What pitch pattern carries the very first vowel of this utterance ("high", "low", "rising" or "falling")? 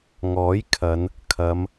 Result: rising